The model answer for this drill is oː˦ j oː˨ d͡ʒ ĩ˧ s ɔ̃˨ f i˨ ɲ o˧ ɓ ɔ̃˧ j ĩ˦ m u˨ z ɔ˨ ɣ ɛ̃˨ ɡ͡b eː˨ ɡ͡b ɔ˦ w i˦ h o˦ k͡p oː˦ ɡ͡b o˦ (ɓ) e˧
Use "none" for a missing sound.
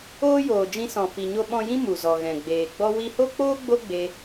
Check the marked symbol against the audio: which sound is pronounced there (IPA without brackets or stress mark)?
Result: ɡ͡b